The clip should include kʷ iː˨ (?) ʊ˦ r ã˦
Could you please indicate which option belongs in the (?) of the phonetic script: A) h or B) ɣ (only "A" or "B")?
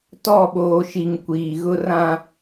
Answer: B